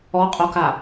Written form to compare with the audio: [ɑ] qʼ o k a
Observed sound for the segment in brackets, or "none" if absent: ɔ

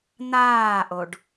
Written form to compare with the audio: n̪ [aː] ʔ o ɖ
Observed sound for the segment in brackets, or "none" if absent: aː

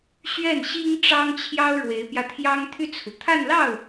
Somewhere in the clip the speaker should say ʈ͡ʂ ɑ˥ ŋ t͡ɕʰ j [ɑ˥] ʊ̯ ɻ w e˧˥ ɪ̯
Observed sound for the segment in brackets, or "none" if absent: ɑ˥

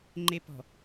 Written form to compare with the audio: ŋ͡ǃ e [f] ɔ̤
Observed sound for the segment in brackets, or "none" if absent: p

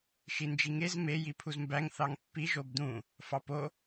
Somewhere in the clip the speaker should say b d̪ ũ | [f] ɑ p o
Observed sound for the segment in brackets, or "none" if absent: f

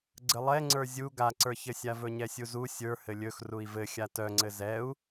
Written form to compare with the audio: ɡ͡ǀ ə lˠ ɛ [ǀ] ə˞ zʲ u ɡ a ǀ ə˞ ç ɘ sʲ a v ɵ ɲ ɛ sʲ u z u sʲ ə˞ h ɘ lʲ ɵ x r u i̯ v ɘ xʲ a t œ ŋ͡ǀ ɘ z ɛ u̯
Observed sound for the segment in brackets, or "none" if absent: ŋ͡ǀ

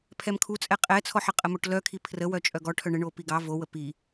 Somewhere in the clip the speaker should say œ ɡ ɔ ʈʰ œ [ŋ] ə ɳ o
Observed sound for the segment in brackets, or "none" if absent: ɳ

